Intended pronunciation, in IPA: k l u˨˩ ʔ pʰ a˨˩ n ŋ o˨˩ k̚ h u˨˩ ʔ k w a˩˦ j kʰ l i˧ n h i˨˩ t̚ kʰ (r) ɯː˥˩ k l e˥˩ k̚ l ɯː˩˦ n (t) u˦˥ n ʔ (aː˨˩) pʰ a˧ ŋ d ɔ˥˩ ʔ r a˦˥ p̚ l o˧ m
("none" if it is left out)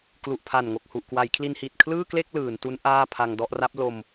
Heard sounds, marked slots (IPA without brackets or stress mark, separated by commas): l, t, aː˥˩